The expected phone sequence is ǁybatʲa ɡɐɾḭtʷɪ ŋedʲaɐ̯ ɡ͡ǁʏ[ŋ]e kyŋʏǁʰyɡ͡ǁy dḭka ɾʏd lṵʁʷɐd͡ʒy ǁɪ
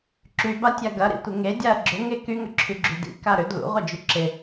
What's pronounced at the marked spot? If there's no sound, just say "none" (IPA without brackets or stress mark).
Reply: ŋ